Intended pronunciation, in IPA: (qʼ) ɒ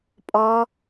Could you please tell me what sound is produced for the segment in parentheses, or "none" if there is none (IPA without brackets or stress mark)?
pʼ